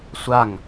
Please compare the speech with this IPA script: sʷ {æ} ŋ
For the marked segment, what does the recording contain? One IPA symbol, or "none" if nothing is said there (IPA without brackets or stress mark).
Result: a